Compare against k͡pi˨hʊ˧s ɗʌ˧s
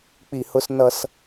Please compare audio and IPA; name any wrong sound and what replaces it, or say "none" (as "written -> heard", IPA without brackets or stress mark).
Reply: ɗ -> n